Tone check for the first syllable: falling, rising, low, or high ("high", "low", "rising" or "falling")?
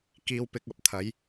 low